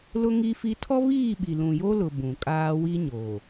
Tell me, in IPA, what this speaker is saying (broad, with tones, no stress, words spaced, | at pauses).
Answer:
lʊ˦ŋi˦fi˦ tʰɔ˦βiː˦˨ɓi˨ lũ˨jo˦lʊ˨ bũ˨kʼaː˦ wi˦ɲoː˨